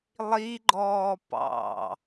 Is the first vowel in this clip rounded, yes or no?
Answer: no